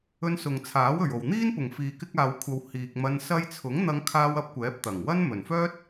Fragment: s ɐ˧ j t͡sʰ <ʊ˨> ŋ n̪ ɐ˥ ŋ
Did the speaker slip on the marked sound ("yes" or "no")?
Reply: yes